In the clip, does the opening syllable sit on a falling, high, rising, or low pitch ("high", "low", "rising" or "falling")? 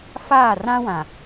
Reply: falling